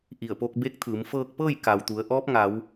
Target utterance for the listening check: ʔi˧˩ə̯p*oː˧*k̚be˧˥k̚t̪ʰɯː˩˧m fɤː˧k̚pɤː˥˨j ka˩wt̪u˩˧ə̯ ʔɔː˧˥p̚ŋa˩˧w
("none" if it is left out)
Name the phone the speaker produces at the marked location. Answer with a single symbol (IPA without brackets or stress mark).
o˧